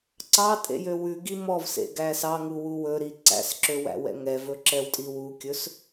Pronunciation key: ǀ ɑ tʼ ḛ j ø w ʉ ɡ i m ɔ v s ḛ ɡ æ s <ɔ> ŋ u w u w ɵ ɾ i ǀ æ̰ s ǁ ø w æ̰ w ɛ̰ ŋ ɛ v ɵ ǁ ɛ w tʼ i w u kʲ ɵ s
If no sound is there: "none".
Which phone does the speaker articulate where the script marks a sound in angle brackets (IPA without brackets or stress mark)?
ɑ